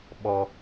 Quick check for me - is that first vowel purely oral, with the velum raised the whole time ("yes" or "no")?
yes